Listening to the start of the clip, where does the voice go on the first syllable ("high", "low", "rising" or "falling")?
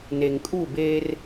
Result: low